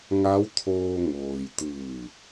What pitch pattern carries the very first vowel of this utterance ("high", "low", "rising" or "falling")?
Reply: rising